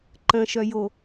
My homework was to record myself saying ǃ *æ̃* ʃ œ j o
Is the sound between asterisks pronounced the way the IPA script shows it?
no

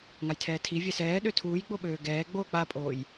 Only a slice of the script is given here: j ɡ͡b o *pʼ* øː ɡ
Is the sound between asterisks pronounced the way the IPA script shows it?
no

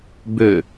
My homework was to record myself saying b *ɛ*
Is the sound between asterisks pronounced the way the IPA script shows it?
no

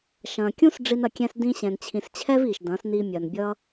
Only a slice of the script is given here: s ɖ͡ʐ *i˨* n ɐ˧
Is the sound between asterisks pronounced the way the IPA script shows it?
no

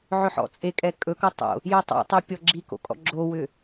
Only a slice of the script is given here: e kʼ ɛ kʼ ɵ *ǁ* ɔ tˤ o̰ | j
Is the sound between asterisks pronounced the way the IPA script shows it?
no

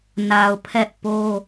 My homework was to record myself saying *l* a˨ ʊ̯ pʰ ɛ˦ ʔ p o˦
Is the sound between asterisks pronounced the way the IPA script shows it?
no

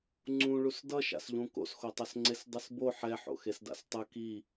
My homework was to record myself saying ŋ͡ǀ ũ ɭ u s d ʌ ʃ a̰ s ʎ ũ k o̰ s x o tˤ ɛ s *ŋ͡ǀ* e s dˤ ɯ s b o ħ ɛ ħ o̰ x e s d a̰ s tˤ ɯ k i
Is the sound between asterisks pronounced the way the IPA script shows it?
yes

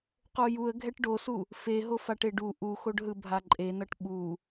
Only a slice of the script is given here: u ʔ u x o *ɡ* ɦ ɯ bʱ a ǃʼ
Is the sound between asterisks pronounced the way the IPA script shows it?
no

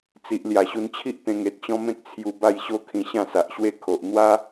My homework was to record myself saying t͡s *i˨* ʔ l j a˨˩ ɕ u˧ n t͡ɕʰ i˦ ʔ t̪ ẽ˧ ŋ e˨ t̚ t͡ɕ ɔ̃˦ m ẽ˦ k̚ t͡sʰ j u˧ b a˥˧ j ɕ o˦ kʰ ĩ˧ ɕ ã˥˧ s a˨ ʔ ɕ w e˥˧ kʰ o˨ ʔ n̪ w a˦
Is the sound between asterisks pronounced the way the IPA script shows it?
yes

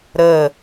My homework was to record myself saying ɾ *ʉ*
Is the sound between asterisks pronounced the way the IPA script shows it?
no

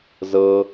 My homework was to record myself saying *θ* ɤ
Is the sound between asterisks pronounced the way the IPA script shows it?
no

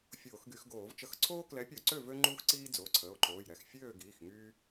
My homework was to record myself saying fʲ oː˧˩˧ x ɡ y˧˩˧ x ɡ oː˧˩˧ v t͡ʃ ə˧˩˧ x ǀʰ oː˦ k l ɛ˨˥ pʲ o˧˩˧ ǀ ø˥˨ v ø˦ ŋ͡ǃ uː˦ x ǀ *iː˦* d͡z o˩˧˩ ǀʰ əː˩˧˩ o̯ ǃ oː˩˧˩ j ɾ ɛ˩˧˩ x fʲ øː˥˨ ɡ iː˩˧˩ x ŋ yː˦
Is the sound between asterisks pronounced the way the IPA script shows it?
yes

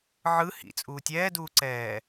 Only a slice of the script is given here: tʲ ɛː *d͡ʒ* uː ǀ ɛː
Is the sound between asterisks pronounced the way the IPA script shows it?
no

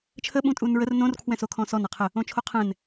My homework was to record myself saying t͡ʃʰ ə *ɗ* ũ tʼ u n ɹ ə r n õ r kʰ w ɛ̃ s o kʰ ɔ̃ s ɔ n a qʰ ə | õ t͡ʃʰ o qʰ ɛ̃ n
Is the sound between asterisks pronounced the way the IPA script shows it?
no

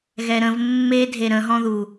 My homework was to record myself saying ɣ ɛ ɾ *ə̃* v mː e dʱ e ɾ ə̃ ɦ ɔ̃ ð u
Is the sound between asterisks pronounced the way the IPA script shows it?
yes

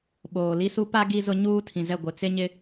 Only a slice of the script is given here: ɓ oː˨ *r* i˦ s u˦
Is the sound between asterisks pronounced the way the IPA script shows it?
no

